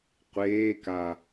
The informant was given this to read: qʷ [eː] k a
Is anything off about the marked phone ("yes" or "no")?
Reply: no